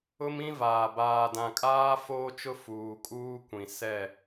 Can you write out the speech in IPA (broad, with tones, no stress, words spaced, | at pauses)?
ʊ˦mĩ˦vaː˨ baː˨dã˨kʼaː˦ foː˦t͡ʃʊ˦ fuː˨kʼuː˦ kʷĩ˨ sɛ˦˨